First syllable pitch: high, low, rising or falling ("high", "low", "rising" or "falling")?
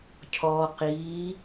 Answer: low